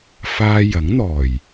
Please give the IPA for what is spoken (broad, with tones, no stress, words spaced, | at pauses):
faː˧jɐ˨˥ŋn̪ɔː˨˩j